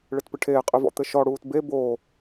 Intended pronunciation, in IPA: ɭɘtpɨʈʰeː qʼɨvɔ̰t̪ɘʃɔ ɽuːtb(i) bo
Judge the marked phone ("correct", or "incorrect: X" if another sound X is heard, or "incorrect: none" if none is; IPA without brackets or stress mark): incorrect: e